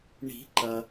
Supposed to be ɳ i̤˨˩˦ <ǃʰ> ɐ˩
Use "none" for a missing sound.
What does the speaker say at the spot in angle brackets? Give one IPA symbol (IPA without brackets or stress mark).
ǃ